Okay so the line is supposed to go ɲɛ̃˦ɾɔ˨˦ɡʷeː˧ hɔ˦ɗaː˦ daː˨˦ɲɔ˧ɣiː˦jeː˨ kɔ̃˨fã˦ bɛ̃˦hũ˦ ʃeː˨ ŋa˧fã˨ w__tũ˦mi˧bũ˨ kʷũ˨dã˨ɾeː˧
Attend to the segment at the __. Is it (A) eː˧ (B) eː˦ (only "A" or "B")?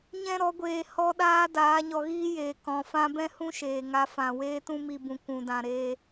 B